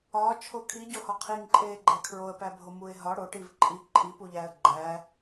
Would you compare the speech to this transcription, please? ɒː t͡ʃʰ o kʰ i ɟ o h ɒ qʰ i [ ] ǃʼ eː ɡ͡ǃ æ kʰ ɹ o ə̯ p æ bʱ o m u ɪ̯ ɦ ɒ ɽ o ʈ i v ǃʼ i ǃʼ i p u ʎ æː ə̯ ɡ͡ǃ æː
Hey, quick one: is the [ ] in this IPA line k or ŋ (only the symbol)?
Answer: ŋ